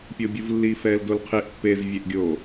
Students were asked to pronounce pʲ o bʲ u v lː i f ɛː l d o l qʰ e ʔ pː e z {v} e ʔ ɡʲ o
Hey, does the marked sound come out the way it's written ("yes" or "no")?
no